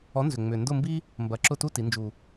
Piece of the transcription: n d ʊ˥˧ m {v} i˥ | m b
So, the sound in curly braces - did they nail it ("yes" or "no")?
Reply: no